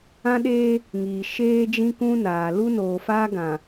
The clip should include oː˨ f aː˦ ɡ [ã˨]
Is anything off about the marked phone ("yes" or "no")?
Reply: no